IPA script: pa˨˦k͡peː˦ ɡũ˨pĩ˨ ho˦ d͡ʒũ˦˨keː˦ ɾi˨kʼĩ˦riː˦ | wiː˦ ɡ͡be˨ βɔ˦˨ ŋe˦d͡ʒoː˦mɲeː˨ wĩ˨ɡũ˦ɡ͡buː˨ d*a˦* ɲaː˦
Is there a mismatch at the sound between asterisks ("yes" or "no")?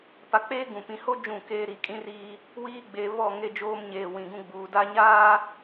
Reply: no